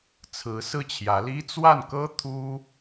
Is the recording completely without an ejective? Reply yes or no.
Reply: yes